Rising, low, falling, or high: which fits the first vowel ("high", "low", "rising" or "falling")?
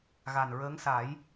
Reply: low